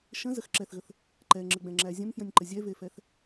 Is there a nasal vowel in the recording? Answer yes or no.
yes